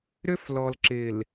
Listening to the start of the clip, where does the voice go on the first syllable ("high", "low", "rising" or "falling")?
high